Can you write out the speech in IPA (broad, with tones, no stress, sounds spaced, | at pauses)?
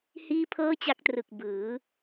h iː˥˩ pʰ ɤː˥˩ t͡ɕ a˦˥ k̚ t r ɯ˨˩ k̚ b ɯː˩˦